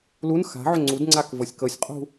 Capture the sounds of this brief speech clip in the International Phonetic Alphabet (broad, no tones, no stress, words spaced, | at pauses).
lun xa̤ʕʏ ŋ͡ǀudŋ͡ǀak vɤsʲkɤsʲqʼṳ